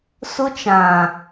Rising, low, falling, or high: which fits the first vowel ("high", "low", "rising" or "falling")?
high